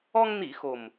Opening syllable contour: high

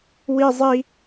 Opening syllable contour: high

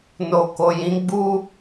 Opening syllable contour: low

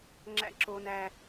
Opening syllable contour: high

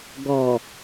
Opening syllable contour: low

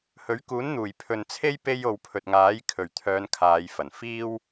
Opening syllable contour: rising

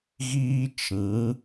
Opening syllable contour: high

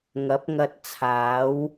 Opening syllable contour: rising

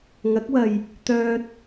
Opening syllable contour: rising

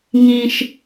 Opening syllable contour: low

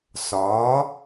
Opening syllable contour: rising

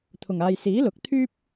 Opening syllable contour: low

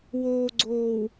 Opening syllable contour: low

